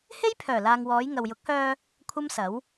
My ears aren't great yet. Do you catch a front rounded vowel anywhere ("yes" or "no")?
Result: yes